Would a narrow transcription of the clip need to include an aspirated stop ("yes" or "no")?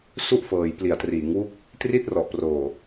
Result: no